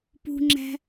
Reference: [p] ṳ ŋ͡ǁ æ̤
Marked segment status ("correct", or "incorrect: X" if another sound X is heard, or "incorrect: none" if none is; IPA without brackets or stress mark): correct